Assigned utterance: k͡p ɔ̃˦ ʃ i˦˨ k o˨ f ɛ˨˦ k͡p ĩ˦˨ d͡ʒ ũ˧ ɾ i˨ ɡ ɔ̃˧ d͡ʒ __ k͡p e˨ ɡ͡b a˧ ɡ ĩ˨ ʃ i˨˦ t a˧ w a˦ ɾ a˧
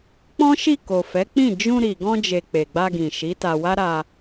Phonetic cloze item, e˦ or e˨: e˨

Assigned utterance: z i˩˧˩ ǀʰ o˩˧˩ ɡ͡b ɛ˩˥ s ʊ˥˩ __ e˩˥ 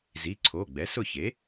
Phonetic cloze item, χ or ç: ç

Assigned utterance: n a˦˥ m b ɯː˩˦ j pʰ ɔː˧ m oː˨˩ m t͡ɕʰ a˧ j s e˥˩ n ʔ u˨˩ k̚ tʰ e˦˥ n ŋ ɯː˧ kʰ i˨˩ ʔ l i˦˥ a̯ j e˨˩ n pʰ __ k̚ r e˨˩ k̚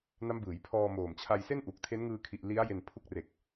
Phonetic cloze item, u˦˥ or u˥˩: u˦˥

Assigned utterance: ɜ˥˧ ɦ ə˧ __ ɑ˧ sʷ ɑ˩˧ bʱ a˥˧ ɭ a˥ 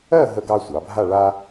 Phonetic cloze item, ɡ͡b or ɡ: ɡ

